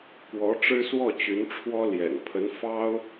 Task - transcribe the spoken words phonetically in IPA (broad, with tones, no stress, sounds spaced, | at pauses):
k w ɔ˧˥ ʈ͡ʂ ɻ̩˥ s w ɔ˥˩ t͡ɕ y˧˥ n ʈ͡ʂʰ w ɔ˥ l j ɛ̰˨˩ n pʰ ə˧˥ n f ɑ˥ ʊ̯